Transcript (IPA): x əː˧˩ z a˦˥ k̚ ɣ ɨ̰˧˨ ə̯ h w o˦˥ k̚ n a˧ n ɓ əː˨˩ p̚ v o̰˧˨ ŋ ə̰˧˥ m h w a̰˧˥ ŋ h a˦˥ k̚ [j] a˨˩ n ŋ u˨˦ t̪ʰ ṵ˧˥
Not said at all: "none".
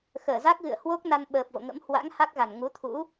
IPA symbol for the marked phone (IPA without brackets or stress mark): ɣ